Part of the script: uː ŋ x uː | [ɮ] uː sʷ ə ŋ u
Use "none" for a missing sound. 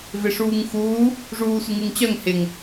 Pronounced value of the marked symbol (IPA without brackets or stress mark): ʐ